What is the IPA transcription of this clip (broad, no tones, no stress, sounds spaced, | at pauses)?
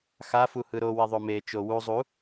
x a f u h ɯ ɾ o w e ðˤ o m e t͡ʃ o w u zˤ u